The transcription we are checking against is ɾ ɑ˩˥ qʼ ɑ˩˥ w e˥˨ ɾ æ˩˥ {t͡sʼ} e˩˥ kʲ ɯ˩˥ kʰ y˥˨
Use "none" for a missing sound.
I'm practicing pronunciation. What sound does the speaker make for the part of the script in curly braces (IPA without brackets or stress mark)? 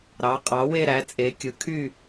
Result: t͡sʼ